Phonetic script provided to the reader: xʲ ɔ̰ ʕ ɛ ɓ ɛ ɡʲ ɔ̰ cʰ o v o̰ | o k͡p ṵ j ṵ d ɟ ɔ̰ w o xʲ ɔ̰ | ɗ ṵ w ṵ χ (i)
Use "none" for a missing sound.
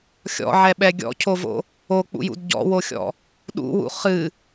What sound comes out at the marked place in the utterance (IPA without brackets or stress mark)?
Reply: ɨ